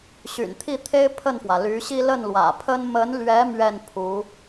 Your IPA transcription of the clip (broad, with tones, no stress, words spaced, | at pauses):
ɕy̰˨˩nt̪ʰi˥˩t̪ʰe˥ɪ̯ pʰə˥˩nfwä˩ly˧˥ɕi˥ lə˥˩nlwä̰˨˩pʰə˥n mə˧˥nlɥɛ˧˥ mɥɛ˥˩npʰu˧˥